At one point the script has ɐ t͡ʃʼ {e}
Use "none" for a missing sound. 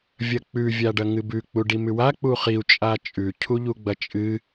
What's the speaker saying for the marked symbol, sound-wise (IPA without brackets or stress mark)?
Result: ɨ